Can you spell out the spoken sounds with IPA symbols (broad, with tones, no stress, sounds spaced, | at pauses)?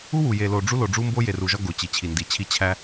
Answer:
u˦ w u˨ j e˨ l o˨ ɖ͡ʐ u˦ l o˨ ɖ͡ʐ u˦ m b o˦ j e˨ r u˨ ʒ ɒ˦ ɡ o˨ t͡ɕ i˨ t͡ɕʰ i˨ n d i˨ t͡ɕʰ i˦ t͡ɕʰ æ˦